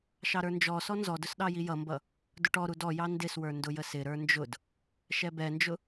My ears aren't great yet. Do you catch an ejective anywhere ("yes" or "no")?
no